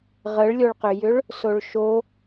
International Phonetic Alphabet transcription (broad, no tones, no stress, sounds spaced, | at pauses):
ʁ ə ɭ lʲ o ɭ q ʏ j ʏ ɭ | s o ɭ ʃ o